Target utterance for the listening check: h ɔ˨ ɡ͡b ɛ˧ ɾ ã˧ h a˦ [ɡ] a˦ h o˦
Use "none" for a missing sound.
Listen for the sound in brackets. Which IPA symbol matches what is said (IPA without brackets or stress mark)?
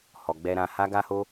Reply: ɡ